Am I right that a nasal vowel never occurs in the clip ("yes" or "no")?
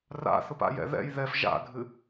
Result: yes